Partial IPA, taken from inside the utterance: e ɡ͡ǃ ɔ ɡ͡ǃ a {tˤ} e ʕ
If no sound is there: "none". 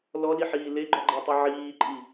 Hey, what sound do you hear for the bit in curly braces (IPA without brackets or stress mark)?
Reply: tˤ